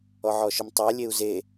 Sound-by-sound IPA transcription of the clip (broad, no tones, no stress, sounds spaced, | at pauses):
ɔ ʕ ɔ ʃ ʊ m tˤ a lʲ e u̯ z e